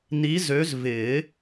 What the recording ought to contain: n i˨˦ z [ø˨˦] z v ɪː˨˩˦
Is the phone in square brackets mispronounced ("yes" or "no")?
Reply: no